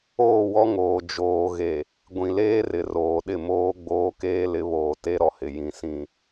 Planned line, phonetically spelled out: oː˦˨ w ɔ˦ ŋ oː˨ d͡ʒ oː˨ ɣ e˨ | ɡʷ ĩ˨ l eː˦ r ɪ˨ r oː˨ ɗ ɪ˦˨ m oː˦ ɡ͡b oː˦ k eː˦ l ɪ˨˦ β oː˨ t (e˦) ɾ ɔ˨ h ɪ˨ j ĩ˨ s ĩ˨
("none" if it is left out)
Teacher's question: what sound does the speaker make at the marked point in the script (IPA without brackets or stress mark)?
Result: e˦